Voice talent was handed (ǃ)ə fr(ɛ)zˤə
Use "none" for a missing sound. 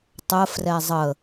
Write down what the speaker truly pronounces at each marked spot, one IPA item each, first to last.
tˤ, ɛ

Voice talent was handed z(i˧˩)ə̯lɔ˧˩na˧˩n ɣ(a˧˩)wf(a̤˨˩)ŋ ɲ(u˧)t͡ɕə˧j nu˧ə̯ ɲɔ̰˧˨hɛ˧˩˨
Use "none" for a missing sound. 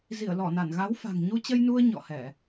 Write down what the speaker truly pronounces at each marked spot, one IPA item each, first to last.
i˧˩, a˨˦, a̤˨˩, u˧

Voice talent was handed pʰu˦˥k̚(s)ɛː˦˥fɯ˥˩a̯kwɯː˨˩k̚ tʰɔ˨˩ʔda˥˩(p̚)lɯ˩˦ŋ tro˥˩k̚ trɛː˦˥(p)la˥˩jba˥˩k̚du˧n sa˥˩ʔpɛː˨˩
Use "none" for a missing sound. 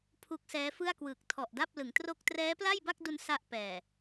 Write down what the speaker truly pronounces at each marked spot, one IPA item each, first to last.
s, p̚, p

